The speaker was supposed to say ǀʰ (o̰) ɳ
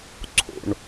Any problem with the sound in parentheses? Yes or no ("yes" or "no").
no